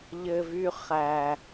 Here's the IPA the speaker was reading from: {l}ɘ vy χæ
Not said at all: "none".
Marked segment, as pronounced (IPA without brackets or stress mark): ʎ